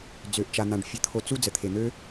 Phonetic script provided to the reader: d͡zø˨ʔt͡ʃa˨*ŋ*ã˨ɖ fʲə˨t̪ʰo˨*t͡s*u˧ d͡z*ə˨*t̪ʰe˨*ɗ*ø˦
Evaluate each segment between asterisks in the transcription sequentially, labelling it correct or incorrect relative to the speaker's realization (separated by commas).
incorrect, correct, correct, incorrect